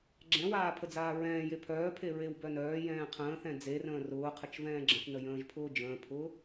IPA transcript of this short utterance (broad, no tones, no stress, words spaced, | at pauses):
ɡ͡ǁɛ̃waː pʰəd͡zaːɹɛ̃ːje pʰœːpʰe ɹewbœnœːjɛ̃ː qʰə̃ːθɛ̃ d͡zerə̃ː rʊːqʰət͡ʃ vɛ̃ːɡ͡ǁə̃θnə jə̃ːʒpʰʊːd͡ʒə̃ːpʰʊː